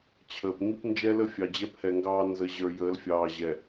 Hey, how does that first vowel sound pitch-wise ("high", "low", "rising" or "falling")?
low